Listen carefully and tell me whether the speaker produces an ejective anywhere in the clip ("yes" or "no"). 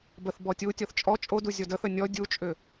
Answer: yes